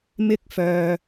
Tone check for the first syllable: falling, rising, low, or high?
high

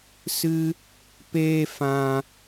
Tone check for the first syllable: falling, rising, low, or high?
high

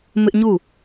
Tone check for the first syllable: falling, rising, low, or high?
high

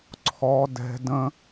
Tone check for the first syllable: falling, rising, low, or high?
high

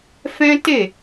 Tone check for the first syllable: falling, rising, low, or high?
high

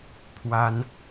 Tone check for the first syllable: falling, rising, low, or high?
high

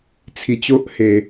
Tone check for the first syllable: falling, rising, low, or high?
low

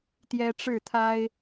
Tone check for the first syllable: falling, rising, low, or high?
high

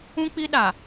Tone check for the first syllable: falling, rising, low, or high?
high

